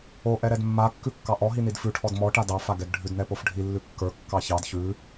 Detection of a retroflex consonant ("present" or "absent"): present